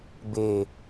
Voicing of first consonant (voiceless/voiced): voiced